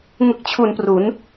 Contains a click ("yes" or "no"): no